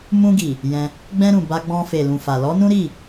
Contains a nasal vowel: yes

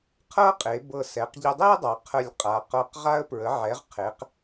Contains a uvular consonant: yes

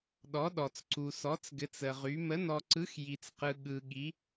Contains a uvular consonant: yes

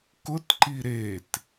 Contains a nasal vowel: no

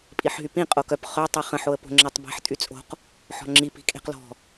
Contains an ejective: yes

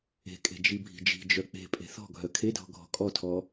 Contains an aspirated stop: yes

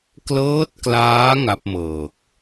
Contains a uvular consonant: no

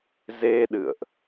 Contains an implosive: yes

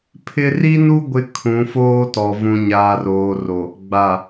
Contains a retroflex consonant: no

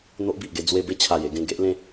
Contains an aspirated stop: yes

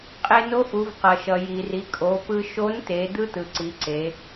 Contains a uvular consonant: yes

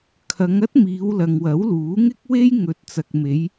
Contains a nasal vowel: no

